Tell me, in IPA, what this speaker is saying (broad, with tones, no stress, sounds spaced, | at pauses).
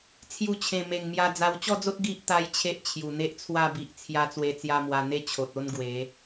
t͡sʰ j u˧ t͡ɕʰ ẽ˨˩ m e˨˩ ŋ m j a˧ d͡z a˧ w t͡ɕ ɔ˥˧ d͡z o˦ t̚ ɡ i˦ ʔ t̪ a˦ j t͡ɕʰ e˦ ʔ t͡ɕʰ j u˨˩ n̪ e˦ ʔ t͡sʰ w a˥˧ b i˨ ʔ t͡sʰ j a˧ t͡s w e˧ t͡s j a˧ m w a˧ n̪ e˦ t͡ɕʰ o˨ t̚ o˦ n ɡ w e˨˦